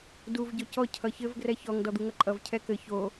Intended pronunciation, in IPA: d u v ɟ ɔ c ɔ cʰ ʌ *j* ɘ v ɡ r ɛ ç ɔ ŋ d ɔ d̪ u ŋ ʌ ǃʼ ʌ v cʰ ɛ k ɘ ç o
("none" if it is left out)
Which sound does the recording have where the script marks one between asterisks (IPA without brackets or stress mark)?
ç